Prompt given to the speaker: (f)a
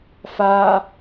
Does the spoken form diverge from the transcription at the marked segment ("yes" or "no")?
no